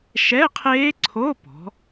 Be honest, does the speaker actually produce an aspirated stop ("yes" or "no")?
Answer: yes